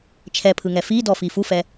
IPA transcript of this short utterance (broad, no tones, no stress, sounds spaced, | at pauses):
t͡ʃʰ ɛ pʰ ɯ ŋ ɛ f i d ɔ f i f u f ɛ